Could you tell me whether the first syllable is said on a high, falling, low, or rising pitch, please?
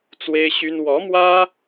high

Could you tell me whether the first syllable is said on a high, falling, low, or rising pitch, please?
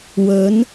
rising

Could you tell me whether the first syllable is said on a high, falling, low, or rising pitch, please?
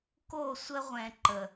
falling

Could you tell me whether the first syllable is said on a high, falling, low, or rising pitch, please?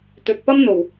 low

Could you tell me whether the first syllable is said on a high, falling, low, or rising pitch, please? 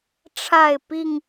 falling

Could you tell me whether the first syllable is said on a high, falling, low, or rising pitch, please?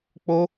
high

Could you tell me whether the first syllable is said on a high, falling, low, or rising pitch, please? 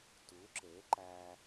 rising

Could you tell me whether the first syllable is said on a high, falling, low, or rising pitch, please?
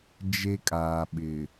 high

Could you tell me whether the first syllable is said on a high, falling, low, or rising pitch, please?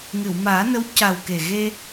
low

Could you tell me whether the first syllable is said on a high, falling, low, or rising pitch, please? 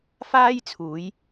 high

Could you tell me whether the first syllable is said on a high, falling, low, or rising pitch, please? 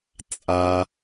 high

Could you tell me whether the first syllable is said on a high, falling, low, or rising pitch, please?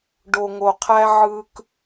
low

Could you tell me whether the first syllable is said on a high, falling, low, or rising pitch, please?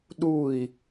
falling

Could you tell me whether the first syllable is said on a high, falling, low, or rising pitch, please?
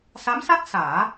rising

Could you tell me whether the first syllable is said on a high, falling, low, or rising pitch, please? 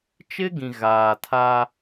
high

